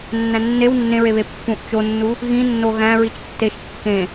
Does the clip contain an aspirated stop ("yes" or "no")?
no